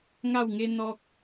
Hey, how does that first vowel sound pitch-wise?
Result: falling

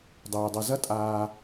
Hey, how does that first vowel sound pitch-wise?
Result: low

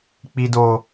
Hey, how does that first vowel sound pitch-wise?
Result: low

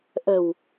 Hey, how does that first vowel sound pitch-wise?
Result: low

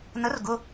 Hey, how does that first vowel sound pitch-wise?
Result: rising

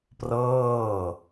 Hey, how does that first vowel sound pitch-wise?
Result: falling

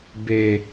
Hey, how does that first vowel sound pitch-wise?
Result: low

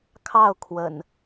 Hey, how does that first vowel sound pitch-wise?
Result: falling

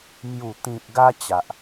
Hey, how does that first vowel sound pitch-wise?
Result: low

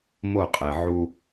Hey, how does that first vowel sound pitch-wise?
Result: falling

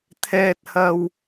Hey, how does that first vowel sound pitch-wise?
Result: low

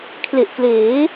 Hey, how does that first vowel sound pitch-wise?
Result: low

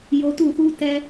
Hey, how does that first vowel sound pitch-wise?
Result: low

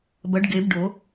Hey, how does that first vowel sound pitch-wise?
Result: rising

